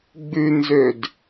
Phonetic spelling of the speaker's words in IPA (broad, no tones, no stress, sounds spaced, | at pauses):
ɡ͡b ʉ n z ø d